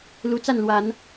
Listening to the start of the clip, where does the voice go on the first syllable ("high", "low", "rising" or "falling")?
high